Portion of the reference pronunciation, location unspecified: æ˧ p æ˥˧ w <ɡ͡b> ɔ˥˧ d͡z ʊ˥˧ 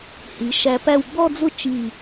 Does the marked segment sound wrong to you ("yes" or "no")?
no